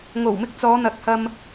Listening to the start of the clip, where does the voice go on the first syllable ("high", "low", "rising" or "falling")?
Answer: low